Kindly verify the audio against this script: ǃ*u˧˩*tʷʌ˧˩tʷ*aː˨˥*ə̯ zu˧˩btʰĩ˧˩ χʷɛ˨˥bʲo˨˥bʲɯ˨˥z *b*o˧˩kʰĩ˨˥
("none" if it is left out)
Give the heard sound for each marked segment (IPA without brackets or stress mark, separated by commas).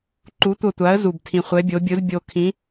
u˨˥, a˨˥, bʲ